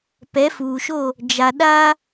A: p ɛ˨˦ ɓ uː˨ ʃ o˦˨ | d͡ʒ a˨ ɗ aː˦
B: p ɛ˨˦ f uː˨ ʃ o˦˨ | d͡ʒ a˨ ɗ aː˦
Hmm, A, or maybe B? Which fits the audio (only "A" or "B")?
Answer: B